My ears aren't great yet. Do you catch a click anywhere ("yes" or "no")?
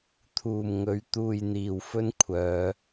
no